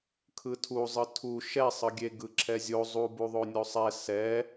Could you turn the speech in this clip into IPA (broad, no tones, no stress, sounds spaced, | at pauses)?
kʰ ɯ tʰ u zˤ ɯ tʰ u ʃ ɛ sˤ ɯ ɡʲ e ɡ ɯ ǁʰ ɛ zʲ o zˤ u b u ðˤ o nʲ o sˤ ɛ s ɛ